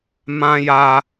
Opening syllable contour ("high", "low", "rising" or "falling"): high